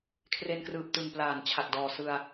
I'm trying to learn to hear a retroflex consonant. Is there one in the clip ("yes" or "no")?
no